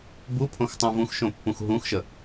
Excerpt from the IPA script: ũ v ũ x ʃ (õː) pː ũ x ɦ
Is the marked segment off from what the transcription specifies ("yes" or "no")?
yes